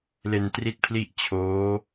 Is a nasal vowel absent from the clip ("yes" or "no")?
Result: yes